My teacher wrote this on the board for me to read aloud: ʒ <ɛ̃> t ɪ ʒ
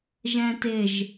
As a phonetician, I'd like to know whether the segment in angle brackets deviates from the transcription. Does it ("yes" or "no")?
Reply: no